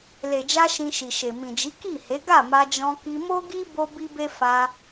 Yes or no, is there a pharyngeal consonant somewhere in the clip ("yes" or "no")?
no